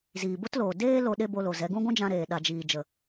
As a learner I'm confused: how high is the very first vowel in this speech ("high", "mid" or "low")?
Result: high